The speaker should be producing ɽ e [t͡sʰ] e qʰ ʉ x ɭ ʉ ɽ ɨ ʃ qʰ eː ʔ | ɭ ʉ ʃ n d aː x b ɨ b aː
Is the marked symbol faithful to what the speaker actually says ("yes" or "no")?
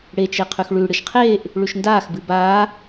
no